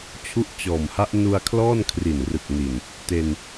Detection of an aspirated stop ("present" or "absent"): present